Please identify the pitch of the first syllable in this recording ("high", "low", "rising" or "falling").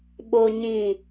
high